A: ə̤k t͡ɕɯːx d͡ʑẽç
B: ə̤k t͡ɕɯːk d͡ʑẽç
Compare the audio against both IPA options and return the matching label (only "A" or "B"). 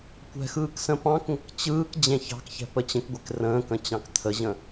B